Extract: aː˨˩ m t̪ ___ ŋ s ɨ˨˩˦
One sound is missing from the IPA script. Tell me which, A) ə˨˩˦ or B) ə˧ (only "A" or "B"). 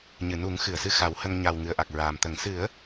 A